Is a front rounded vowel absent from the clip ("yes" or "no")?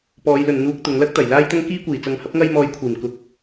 yes